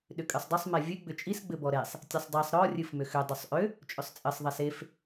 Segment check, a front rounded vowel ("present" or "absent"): present